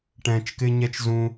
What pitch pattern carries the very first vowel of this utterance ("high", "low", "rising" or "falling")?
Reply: low